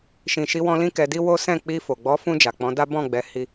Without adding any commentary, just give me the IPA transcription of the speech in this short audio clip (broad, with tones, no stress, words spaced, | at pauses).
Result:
ʃĩ˨ʃi˧wɔ̃˧ lĩ˦kɛ˧di˦wo˦ sɛ̃˦˨k͡pi˧fo˨ ɡ͡bɔ˨˦fũ˧ d͡ʒa˨k͡pɔ̃˨˦da˦ bɔ̃˦˨ ɡ͡bɛ˨˦hi˧